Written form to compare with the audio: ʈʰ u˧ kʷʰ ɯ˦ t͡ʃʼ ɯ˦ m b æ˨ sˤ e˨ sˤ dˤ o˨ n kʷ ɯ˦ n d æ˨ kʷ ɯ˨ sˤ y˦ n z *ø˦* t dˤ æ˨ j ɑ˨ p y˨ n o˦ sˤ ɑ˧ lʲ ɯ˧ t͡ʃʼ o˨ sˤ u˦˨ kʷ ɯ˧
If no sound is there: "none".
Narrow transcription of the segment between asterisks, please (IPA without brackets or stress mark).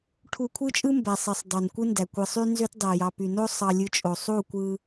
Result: ø˦